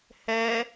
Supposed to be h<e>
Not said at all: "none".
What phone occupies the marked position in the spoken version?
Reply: ɛ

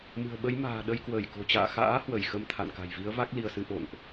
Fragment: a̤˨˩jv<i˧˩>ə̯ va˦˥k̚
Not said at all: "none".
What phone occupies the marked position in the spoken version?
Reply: i˨˦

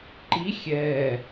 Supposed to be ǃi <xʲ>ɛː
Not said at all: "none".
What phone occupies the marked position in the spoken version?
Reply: xʲ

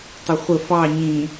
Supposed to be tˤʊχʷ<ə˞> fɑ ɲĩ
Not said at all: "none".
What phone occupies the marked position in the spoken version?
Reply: ə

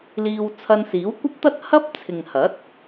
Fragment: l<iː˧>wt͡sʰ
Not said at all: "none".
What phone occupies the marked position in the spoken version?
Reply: iː˧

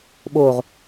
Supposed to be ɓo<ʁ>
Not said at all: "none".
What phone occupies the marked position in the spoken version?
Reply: ʁ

